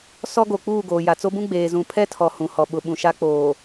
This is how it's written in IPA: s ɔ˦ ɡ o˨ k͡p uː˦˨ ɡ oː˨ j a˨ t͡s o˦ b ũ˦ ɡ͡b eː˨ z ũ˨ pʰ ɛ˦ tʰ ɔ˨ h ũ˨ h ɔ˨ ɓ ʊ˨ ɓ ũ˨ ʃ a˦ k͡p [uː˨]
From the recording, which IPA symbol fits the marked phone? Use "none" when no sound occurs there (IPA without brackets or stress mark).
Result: oː˨